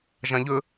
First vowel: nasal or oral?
nasal